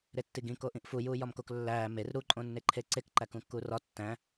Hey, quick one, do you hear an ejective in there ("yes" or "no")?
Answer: yes